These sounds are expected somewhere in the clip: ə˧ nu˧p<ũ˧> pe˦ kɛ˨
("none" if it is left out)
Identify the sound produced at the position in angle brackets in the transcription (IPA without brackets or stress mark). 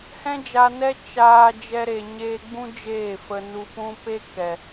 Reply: ũ˦